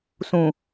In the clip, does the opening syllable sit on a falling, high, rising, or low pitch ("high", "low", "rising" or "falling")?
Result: low